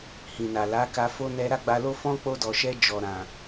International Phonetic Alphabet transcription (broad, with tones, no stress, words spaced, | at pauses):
hĩ˨na˨la˨˦ka˧ fo˦ nɛ˧ ɾa˦ɡ͡ba˧lo˦ fɔ̃˦k͡po˧dɔ˨ʃɛ˧ d͡ʒɔ˨ ɾã˨